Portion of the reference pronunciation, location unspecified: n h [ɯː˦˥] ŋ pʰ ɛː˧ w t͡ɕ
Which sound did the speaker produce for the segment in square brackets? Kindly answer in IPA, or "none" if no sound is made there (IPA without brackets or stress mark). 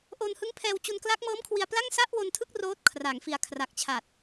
ɯ˦˥